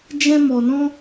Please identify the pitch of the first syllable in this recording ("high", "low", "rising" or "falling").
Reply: high